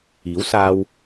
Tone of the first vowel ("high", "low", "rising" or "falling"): rising